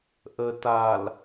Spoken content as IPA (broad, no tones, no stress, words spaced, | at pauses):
ʔə tal